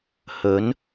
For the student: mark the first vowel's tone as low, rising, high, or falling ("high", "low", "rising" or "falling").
rising